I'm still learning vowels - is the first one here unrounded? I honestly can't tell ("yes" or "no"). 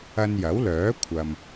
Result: yes